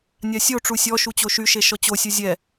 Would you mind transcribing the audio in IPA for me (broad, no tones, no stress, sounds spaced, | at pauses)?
nʲ a sʲ o ʈ͡ʂ u sʲ ɔ ʃ u t͡ɕ o ʃ y ʃ e ʃ ɔ t͡ɕ o sʲ u zʲ ɛ